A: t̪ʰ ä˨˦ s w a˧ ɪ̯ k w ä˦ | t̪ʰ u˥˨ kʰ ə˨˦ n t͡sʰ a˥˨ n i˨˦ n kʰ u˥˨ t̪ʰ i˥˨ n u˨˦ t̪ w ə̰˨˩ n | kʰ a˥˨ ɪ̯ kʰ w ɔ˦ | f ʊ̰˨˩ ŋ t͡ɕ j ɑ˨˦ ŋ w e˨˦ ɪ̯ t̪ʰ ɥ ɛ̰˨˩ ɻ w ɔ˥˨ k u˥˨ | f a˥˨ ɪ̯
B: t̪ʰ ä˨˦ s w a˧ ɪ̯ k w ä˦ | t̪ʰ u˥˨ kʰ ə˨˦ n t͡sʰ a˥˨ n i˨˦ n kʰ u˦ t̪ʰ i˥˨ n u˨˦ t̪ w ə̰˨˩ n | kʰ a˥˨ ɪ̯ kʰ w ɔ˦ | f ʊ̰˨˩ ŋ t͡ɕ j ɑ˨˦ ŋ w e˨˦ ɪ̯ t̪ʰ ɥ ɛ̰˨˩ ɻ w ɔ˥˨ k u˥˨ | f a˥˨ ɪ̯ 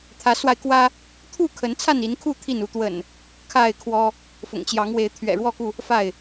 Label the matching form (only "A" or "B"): A